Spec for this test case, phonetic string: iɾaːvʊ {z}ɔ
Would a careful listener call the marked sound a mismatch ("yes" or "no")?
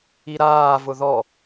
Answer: yes